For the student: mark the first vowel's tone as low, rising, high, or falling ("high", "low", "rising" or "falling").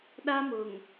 high